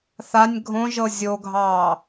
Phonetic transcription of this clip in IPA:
θ a nʲ ɡʱ õ ʒ ɤ zʲ o ɡʱ ɑː

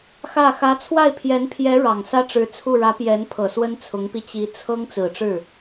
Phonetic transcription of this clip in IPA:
x ä˥˩ x ä˧˥ t͡sʰ w a˥˩ ɪ̯ pʰ j ɛ˧˥ n pʰ j ɛ˧˥ ɻ ɑ˨˩ ŋ s ä˥ ʈ͡ʂ ɻ̩˧˥ t͡sʰ u˥˩ ɻ ä˧˥ p j ɛ˧˥ n pʰ ɤ˨˩ s w ə˥ n t͡sʰ ʊ˧˥ ŋ p i˧ t͡ɕ i˧˥ t͡sʰ ɤ˥ ŋ t͡s ɹ̩˨˩ ʈ͡ʂ ɻ̩˥˩

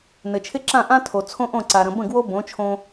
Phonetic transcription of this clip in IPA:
n ɘ˩ t͡ʃʰ ɪ˥ ǁ ã˥˩ ʔ ã˥ tʰ o˩ t͡sʰ õ˥ ʔ õ˥˩ ǀ a˩ ɾ ə̃˩ b ə̃˥˩ ɡ w o˥ b õ˩˥ t͡ʃʰ õ˧

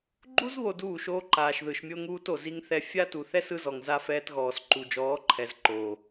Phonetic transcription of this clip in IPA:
ɡ͡ǃ u˦ z β o˨ d uː˦˨ ʃ oː˦ ǃ aː˨ ʃ ð ɯ˨ ʃ mʲ o˦ ŋ uː˦ t o˨ z i˦ ŋ θ ɛ˦ fʲ a˦ t u˨ θ ɛ˦ s ɯ˦ z ɔ˨ ŋ z a˦ f ɛː˦ t ɣ ɔː˨ s ǃ u˨ d͡ʒ ɔː˨˦ ǃʰ ɛ˨ z ǃ oː˨

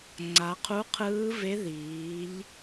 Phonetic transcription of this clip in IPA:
ŋ͡ǀ a˩˧ qʰ u˧˥ qʰ ɯː˧˥ v e˧˥ ð iː˩˧ ʎ

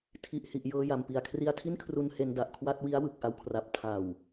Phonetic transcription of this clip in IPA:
tʰ i˨˩ ʔ h i˨˩ ʔ j ɤː˧ j a˨˩ m p i˨˩ a̯ kʰ r i˧ a̯ tʰ i˥˩ n kʰ r u˧ n h e˧ n d a˨˩ ʔ kʰ w a˥˩ t̚ w i˦˥ a̯ w ɯ˨˩ k̚ ʔ a˧ w kʰ r a˨˩ p̚ tʰ a˨˩ w

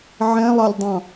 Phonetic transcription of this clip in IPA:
ʕ ɛ̃ lˠ ɑ lʲ dˤ ɑ̃

